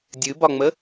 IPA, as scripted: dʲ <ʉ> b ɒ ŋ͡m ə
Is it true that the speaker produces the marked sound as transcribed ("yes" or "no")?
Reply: no